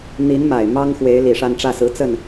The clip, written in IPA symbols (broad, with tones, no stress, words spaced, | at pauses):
n̪i˧˥n ma˨˩ɪ̯mɑ˥ŋxwe˧˥ɪ̯ li˨˩ʂa˥˧nʈ͡ʂä˥˩ sɹ̩˧˥ t͡sə˥˩n